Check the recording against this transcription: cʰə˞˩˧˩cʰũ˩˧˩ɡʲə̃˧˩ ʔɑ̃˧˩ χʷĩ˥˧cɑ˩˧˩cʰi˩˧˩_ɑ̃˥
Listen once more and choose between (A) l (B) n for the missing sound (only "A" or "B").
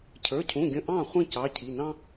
B